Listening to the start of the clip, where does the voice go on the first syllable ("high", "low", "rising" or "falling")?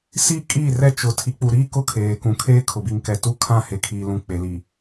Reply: falling